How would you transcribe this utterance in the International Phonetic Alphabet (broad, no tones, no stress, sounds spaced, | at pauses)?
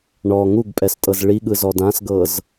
ɳ ɔ ŋ u ɡ pʼ ɛ s tʼ ɤ z ɭ i ɠ ɯ z ɔ d ã s ɡ ɤ z